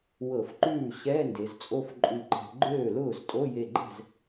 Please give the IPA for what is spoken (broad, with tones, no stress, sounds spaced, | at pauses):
w ɤ˧˩˧ f ǃ ʉː˥˩ ɕ ɛ˧˥˧ n d e˩˧ z t͡sʼ o˥˧ f ǃʼ ʉ˧˩ ǃ ɛ̤˧˩˧ ɡ͡ǃ øː˥˩ l ʊː˥˩ z tʼ o˧˥˧ j e˧˩ ɡ͡ǃ ɛ̤˥˩ z